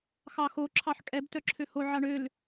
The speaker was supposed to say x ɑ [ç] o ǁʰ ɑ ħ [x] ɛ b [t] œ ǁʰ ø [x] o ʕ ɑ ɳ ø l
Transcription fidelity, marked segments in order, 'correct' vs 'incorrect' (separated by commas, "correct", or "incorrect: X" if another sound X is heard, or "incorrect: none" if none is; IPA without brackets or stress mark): incorrect: x, incorrect: kʼ, correct, incorrect: h